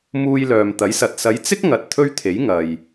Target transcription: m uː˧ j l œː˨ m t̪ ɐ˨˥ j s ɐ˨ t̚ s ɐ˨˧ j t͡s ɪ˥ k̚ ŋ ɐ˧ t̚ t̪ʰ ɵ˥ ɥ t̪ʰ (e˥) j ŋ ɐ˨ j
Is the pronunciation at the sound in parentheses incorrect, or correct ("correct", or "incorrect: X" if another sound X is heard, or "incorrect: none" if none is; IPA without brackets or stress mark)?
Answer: incorrect: e˨˥